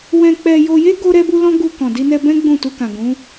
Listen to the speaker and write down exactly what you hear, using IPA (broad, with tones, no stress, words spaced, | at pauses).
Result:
wɛ̃˧k͡pɛ˧ jo˧je˦ ɡo˦ɾɛ˦bu˦lɔ̃˦ ɡu˧ kɔ̃˨di˧nɛ˧ bɛ̃˦ɡ͡bũ˦˨tu˧kã˨ ɡũ˨˦